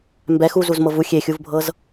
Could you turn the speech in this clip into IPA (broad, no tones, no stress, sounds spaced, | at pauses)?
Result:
m b ɛ x u z u z m ɤ v u xʲ e xʲ u v bʱ ɤ z